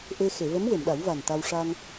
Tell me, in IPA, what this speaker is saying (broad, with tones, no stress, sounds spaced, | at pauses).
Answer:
ʔ e˧ x e˨˩˨ v ə˧˥ m w e˨˩˨ m ɗ a˨˩˦ w v a˨˩ n t̪ a˧ w ʂ a˧ ŋ